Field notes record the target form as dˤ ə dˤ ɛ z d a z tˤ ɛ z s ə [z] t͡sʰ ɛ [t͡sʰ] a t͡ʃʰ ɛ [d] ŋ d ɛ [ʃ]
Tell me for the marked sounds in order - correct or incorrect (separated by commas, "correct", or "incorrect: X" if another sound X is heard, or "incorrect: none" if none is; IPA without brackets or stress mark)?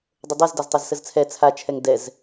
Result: correct, correct, incorrect: none, incorrect: z